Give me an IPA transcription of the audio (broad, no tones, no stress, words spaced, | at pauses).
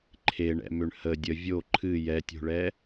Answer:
ǃʰeɳɛ̰mʏɳ hə dʲə vʲo ǃʰɨ jɛtʲo̤ɭɛ